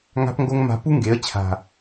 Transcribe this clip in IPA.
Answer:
ŋa̤˦pŋɡo˦ŋ ma̤˧pu˦ŋɡe˨˦ə̯ t͡ɕʰa̤˨

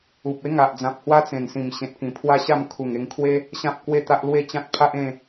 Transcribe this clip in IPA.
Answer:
u˨p̚ e˦ŋa˨ʔd͡zã˨p̚ hwa˦t͡sẽ˨˩nsĩ˨˩m ɕẽ˨t̚kĩ˨˩pʰwa˦ ɕa˥˧m kʰu˨˩ŋ e˧ŋkʰwe˦ | ɕã˦p̚kwe˥˧t̪a˦ʔ lwe˥˧t͡ɕã˦t̚ pʰa˦ʔẽ˥˧

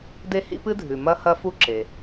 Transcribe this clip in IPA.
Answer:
de˥hḭ˥pɨ˥dʱʉ˨ mɐ˥hɐ˥fu˥ ǁe˨

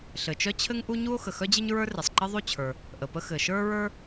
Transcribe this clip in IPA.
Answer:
ɬɘ˩t͡ʃœ˥t͡ɕʰɘ˥ŋ ʔu˥ɲu˥o̯ xə˩xœ˥d͡ʑɘ˥ɲ ɹə˞˥re˩sˤǃɘ˥ ðˤu˥t͡ɕʰə˞˩ | ʔə˩pə˥ xɘ˩ ʃə˞˥ɹə˞˥

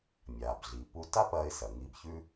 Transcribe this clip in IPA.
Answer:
mʲa˩bɮi˩pu˧ ta˥pɐ˧ɪ̯sɐ˩ ŋi˧bçʉ˥

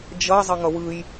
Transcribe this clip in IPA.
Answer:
d͡ʒʌ zˤʌŋʌwɯj

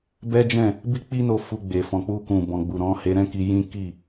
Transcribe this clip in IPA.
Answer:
bɛ˦d͡ʒɛ̃˦˨ | bi˦k͡pi˦no˧ fu˧ɡ͡be˨ fɔ̃˨k͡pu˧kũ˨ bɔ̃˨ɡ͡bu˨ ɾɔ̃˨˦he˧ɾɛ̃˦ki˧ jĩ˦ ki˦˨

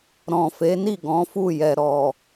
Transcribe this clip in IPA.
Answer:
ɾɔ̃˨fe˨˦ni˦˨ ɡɔ̃˨˦fu˦˨jɛ˨ ɾɔ˨

